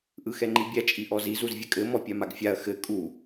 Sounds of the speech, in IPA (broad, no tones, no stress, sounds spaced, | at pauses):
ʔ ɯ x ɛ ŋ͡ǃ i bʲ æ t͡ʃʼ i ʔ ɔ z i z u z vʲ ɘ kʼ ɘ m ɔ pʲ a m a ɡ fʲ a ɐ̯ x ɘ kʼ u